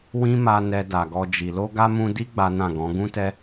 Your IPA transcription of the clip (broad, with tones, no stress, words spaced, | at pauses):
wĩ˦ma˧ nɛ˨ da˨ɡɔ˧d͡ʒi˨ lo˧ɡa˧ mũ˧di˦ ɡ͡ba˦nã˦˨ɡɔ̃˨˦ ɡũ˦tɛ˦